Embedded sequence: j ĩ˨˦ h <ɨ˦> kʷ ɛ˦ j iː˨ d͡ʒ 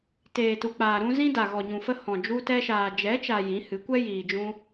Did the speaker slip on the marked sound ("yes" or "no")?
yes